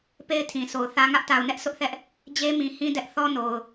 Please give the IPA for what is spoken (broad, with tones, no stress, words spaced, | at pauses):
pe˦ɪ̯tʰĩ˨ so˨ʊ̯θä˦ ŋä˦ʔta˨ʊ̯nɛ˦ʔ sʊ˦ʔθɛ˦ʔ | d͡ʑe˦mĩ˨ hĩ˦dɛ˦ʔ θɔ˦no˨ʊ̯